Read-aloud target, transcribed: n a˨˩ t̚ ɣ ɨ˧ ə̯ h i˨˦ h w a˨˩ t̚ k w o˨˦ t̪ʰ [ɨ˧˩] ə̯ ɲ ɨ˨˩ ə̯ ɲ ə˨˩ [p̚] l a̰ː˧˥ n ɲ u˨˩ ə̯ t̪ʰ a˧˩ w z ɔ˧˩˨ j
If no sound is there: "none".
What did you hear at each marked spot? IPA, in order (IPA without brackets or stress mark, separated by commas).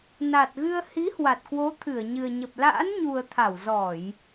ɨ˧˩, p̚